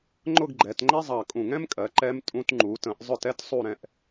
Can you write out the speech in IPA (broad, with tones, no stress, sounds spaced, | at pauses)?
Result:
ŋ͡ǃ ʊ˥˧ ɡ ɡ͡ǃ ɛ˩˧ t ŋ͡ǃ ɛ˥ zˤ ɑ˧˩ kʼ ũ˧˩ ŋ ɛ̃˥ m kʼ ɜ˩˧ ǃ ɛ˧ m tʼ ũ˧ t ŋ͡ǃ u˩˧ t ə̃˩˧ ʔ zˤ ʊ˧˩ t ɛ˥ t sˤ u˧˩ ɾ ɛ̃˧˩ ʔ